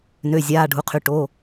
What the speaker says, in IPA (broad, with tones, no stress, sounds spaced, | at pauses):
n ø˩˧˩ zʲ aː˩˧˩ ɖʱ u˩˧˩ qʰ y˩˧˩ ʈ o˩˧˩